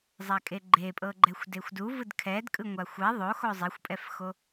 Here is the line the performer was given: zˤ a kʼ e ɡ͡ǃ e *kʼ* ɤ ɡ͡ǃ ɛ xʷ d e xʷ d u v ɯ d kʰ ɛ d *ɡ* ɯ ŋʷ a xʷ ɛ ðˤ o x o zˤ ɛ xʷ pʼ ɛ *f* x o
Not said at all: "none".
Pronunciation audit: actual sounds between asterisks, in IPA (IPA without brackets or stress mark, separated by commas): pʼ, kʼ, f